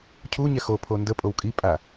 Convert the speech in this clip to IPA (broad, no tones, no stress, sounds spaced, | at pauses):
cʰ u ɲ ɛ x o pʰ o n d ə pʼ o w kʼ i pʼ a